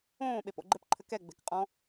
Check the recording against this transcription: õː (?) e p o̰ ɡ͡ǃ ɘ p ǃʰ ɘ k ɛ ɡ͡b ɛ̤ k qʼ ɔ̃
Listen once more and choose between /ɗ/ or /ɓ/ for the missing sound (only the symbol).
ɓ